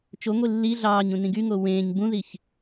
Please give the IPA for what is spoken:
t͡ʃ o ŋʷ i lː i ɮ ɑː ɲ ũ n ĩ ɡ y ŋ o w ẽː ɲ b ũ ð i ç

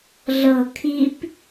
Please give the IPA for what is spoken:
ɮ ɤ kʰ i p

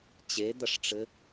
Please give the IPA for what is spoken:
t͡ɕ e d̪ ɐ ʂ ʈ͡ʂ ɘ

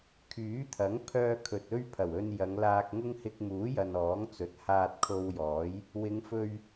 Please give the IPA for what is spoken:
kʰ yː˨˥ t̪ʰ ɐ˨˥ ŋ pʰ œː˧ kʰ ɵ˨ t̚ ɵ˥ ɥ pʰ ɐ˨˩ w ɵ˧ n j ɐ˨˧ ŋ l aː˧ k̚ ŋ ʊ˥ ŋ h ɪ˧ k̚ m uː˨˥ j ɐ˨ n ɔː˨˥ ŋ t͡s ɵ˨˥ t̚ h aː˧ t̚ kʰ o˧ w j ɔː˨˥ j | w ɪ˨˧ ŋ f ɵ˧ ɥ

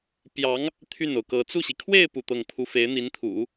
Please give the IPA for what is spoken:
p j ɑ˧˥ ŋ | t̪ʰ y˥˩ n o˩ ʊ̯ k ɤ˧˥ t͡s u˥˩ ɕ i˩ kʰ w e˥˧ ɪ̯ p u˥˧ t̪ ɤ˥˩ ŋ pʰ u˥ f e˧˥ ɪ̯ n̪ i˧˥ n t̪ʰ ṵ˨˩˦

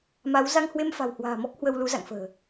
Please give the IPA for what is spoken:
m a˨˦ w z a˧ ŋ h w e˧ m f a̤˨˩ w h w a̤ː˨˩ m ɔ˦˥ k̚ h w ə˧ w l u˨˦ z a̰˧˨ ŋ f ə̤ː˨˩

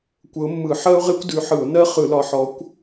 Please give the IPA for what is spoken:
kʷ ə˨˦ ʊ̯ mː ɯ˧˩˧ ħ ɜ˥ ʊ̯ ʁ e˥ kʷ d ʉ˨˦ ħ ɯ˧˩˧ ʊ̯ n ɜ˥ χ ɯ˧˩˧ l ɒ˨˦ ħ ɔ˨˦ kʷ

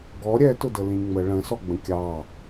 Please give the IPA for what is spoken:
ɡ ɔ ɾʲ ɛ t ʊ d ə l ĩ ŋ͡m ə ɭ ə̃ s ɔ ɡ͡b ə̃ kʲ ɑ

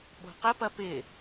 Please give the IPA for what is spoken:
ɓ o̤ q ə p ɐ p ɪ

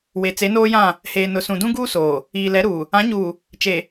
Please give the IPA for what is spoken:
w e˨ t͡s e˨˦ n oː˦ j ã˦˨ | h eː˨ n ʊ˨ s ũ˨ d ũ˦ ɡ uː˦ s oː˨ | iː˨ l ɛ˨˦ ɾ uː˨ | ã˨˦ ɲ uː˨ | t͡ʃ e˨

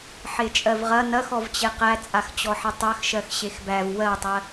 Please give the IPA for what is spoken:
ħ e t͡ʃʼ ɜ v ʁ ɐ n ɐ x ɔ v t͡ɕ e q æ t͡sʼ a x t͡ɕ ɔ ħ e tˤ ɜ x ʃ ɜ x ɕ e x b æ v w ɜ tˤ ɜ

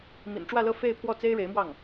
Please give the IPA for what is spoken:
m ḭ˨˩ n ʈ͡ʂ w ä˥˧ l ɤ˥˧ f e˥˧ ɪ̯ pʰ w ɔ˥˩ t͡s e˥ ɪ̯ ɻ e˧˥ ɪ̯ m w ɑ˥˩ ŋ

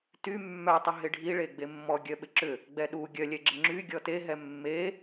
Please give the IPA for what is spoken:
t y mː œ tˤ ɪ ɦ ɪ ɖʱ i ɭ e ɡ͡b e mː ɔ ɡʲ œ ɓ ɪ ǁ ʏ | ɡ͡b ɛ ɗ u ɡʲ œ lʲ ɛ ɡ͡ǁ ɪ ŋ͡ǁ y ɡʲ ɔ t e ɦ ɛ mː e

